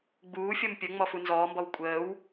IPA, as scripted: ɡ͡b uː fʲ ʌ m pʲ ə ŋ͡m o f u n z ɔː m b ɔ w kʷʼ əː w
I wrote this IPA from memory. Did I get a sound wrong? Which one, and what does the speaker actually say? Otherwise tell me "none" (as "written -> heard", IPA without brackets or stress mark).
o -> ɔ